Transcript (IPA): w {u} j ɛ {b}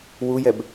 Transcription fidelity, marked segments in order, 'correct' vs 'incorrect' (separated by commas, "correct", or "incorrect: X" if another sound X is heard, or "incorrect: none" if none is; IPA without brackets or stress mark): correct, correct